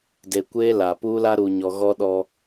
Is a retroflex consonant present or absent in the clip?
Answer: absent